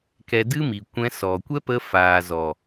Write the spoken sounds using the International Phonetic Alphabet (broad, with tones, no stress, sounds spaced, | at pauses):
k ɛ˧ d ɨ˦ m i˨ kʷ ɛ̃˧ s ɔ˨ kʷ ɛ˦ p ə˧ f aː˨ z ɔ˨